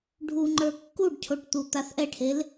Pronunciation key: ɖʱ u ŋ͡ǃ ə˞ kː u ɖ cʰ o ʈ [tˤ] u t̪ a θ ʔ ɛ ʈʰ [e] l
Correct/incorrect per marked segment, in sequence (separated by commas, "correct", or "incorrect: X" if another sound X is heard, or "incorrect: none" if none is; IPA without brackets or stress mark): incorrect: t̪, correct